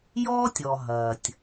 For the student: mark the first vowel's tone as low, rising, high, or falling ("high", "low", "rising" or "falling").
high